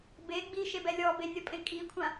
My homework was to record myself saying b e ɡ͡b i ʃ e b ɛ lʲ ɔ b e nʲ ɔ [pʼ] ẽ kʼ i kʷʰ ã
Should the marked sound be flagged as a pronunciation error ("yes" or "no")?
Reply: no